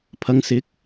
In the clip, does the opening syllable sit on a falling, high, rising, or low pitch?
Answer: low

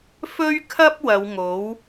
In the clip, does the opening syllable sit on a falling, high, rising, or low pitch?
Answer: high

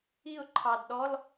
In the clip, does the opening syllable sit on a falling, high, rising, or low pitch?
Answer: falling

